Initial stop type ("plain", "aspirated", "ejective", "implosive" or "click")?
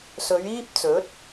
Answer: plain